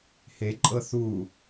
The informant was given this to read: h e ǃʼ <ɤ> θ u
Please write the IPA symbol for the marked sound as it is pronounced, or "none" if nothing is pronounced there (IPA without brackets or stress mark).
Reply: ɤ